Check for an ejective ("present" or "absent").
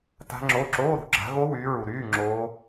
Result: absent